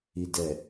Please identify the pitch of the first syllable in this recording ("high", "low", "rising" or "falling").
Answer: low